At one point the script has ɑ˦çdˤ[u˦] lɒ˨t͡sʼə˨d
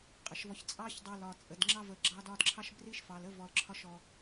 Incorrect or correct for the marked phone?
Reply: incorrect: u˨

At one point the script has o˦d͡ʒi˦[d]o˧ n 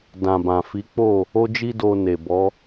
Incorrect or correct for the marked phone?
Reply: correct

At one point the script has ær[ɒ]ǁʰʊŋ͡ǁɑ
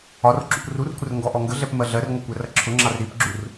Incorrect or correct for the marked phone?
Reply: incorrect: ʌ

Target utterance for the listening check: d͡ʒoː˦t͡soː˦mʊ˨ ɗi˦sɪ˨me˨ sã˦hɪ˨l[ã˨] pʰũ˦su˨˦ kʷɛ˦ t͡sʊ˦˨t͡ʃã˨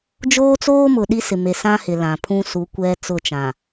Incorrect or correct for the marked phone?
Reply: correct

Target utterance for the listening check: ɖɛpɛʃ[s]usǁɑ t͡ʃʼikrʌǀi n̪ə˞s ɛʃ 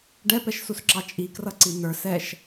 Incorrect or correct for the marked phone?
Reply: correct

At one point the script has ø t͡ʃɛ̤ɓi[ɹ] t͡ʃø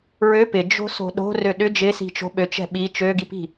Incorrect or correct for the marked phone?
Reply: incorrect: none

